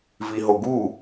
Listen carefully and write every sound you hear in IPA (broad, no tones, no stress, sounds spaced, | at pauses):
v i ɦ o ɡ u